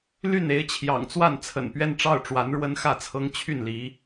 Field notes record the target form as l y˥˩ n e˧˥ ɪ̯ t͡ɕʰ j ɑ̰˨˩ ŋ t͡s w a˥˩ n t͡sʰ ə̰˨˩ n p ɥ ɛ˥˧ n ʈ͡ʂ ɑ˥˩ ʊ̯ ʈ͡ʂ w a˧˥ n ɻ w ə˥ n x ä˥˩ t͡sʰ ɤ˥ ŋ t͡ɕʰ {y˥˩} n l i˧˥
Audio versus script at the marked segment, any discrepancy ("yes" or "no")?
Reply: no